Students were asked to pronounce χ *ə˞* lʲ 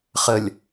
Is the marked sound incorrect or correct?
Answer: incorrect: ə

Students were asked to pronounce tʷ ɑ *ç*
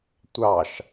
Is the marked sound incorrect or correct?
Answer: incorrect: ʃ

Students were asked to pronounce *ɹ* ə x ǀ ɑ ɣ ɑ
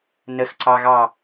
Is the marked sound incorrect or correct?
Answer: incorrect: n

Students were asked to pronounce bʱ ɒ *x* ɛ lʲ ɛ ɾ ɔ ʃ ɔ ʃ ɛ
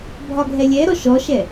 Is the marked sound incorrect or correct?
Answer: incorrect: ɡʱ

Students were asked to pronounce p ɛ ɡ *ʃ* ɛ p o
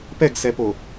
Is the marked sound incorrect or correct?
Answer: incorrect: s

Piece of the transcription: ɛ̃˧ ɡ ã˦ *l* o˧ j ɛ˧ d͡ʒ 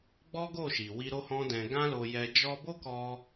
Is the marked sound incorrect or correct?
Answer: correct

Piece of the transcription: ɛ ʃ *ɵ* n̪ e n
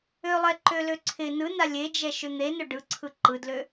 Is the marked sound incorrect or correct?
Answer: incorrect: ø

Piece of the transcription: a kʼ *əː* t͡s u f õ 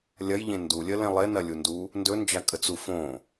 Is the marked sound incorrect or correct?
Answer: incorrect: ə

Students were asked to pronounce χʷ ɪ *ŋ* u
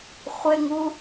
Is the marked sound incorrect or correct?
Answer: correct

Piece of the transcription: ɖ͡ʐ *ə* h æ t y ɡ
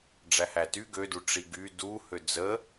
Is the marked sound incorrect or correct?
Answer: incorrect: æ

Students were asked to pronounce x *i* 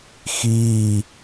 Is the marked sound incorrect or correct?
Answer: incorrect: iː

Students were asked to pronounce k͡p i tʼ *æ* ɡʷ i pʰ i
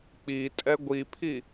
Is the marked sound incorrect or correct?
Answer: incorrect: ɛ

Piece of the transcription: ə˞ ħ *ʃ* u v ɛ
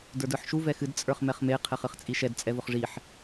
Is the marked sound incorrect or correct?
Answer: correct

